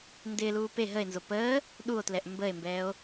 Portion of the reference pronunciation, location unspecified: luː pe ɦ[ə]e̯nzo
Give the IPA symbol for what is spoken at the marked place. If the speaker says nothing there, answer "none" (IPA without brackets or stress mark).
ə